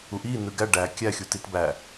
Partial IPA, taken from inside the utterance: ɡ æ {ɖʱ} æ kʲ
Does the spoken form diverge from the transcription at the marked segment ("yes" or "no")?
yes